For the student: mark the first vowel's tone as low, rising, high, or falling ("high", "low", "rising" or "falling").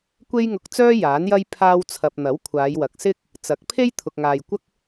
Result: high